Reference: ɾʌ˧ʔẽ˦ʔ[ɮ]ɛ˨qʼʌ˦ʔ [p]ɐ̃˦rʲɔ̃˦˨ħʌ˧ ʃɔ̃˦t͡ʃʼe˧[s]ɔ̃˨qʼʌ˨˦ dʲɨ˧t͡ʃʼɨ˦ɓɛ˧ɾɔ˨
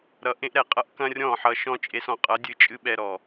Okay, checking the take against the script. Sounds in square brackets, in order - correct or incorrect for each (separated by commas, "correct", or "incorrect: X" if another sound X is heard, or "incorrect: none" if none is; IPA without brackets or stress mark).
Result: incorrect: ɾ, incorrect: k, correct